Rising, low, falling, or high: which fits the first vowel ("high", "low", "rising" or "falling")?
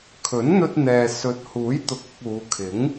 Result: rising